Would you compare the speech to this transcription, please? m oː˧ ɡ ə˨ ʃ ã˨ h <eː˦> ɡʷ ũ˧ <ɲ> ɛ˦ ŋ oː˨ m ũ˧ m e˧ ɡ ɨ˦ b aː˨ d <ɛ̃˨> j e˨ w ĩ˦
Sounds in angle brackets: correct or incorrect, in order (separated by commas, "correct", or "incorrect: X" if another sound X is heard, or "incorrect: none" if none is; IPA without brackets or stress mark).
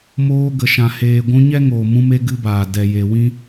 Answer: incorrect: eː˨, correct, incorrect: ɛ˨